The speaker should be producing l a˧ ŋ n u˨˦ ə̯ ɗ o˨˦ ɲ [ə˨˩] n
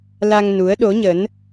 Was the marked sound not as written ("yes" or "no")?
yes